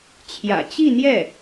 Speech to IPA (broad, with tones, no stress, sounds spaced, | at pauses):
t͡ɕʰ j ä̰˨˩ t͡ɕ i˥˧ n̪ j ɛ˥˩